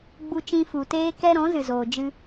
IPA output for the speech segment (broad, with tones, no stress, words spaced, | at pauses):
ɡ͡bu˦t͡ʃĩ˦ fu˨ teː˦kɛ˦ ɾɔ̃˨˦zɨ˨zoː˨d͡ʒɨ˧